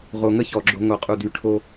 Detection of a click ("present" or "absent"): present